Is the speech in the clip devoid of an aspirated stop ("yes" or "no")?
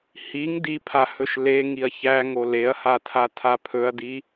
no